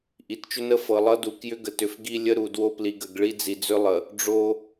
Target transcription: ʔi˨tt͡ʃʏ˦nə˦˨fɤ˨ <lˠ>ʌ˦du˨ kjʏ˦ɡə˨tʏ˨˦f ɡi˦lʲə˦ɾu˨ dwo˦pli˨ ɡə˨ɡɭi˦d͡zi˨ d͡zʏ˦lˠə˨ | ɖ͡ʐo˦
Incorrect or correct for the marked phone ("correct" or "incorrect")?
correct